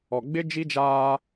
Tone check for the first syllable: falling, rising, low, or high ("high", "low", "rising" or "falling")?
low